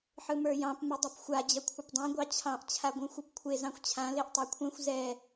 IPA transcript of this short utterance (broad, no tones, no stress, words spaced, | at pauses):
ħɯmə˞jɑ̃p mɯdˤapxʷa d͡ʑɐkʷʰɐpdˤã ɡʷɑt͡ɕʰɑ̃ʔ t͡ɕʰaɡʷɛ̃xʷɯpkʷʰe zɑ̃xʷt͡ɕʰã leʔtˤɑkʷʰɛ̃xʷ zɛ